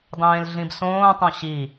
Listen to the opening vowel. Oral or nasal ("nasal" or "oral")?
nasal